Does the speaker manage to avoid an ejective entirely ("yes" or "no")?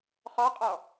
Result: no